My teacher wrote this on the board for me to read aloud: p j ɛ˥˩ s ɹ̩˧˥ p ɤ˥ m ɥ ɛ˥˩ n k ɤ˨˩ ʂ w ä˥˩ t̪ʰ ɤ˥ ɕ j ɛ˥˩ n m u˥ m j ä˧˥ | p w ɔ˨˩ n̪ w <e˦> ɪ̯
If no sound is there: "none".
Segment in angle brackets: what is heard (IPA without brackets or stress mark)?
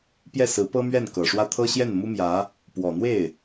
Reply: e˥˩